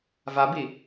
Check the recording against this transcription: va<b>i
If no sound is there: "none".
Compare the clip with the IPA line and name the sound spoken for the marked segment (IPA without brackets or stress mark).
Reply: b